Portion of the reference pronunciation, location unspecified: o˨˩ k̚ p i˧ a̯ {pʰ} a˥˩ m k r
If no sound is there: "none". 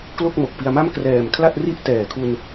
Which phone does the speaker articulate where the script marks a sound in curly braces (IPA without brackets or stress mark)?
m